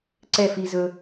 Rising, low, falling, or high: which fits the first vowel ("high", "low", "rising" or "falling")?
falling